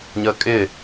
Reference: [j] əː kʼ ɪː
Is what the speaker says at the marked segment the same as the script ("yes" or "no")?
no